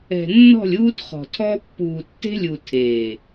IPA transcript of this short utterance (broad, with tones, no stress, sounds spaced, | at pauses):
ɛ̤˨ nː ɔ̤˦˨ lʲ uː˦ t χ ɔ̤˨ tʰ ɔ˦ pː uː˨ tː e̤˦ lʲ u˨ tʰ eː˨